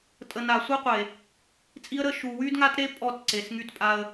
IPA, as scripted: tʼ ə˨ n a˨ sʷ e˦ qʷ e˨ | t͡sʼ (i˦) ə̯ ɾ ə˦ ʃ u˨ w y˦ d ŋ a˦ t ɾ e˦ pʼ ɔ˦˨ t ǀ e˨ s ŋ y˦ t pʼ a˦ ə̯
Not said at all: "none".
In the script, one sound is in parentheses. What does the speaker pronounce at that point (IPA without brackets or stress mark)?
i˦